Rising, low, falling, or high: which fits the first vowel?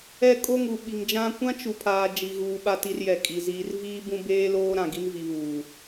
high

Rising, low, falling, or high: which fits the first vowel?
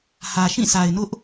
low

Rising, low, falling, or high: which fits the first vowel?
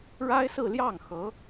high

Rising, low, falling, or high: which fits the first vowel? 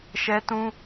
high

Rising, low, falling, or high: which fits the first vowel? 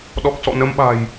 low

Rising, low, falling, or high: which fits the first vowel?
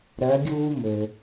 rising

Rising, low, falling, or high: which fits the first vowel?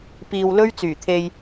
low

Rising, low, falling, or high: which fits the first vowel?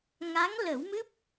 rising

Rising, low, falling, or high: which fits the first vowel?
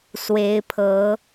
rising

